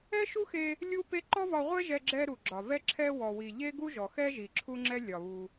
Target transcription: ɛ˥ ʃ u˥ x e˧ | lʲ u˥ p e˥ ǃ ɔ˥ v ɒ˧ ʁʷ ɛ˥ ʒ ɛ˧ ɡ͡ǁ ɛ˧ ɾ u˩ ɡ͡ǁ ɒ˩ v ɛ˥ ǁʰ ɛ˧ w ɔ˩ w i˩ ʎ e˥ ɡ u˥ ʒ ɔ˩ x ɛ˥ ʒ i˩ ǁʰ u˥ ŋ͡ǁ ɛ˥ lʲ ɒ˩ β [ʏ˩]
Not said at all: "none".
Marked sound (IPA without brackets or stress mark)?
u˩